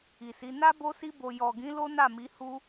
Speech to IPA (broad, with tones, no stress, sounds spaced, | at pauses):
i˨ s i˨˦ n a˦ b o˦ s i˦ b o˧ j ɔ˨ ɡ ĩ˨˦ l o˦ n a˦˨ m i˨˦ h u˦